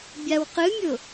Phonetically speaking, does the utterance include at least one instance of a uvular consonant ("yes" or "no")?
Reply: yes